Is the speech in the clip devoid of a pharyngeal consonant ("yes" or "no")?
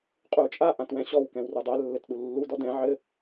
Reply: no